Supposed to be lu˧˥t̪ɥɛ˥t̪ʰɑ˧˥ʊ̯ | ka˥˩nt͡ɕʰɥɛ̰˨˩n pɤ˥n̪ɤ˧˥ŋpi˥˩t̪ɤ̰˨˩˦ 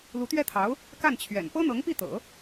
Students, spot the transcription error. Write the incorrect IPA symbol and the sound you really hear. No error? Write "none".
none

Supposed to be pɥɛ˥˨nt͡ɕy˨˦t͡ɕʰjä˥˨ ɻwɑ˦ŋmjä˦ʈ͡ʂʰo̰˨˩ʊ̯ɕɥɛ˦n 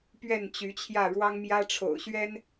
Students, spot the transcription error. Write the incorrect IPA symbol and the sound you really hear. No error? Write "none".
none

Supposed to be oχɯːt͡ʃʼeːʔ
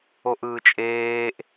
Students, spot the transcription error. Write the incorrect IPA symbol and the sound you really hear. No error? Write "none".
χ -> ʔ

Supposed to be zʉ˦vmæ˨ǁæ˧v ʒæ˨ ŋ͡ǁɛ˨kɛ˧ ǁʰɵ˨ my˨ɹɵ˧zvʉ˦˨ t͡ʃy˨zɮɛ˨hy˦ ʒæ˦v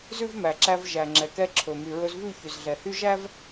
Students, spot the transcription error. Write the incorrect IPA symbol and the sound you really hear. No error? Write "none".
t͡ʃ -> ç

